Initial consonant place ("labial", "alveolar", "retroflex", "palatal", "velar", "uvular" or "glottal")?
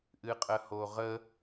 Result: glottal